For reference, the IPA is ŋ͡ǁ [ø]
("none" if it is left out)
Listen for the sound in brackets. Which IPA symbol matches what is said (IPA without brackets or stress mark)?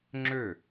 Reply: ø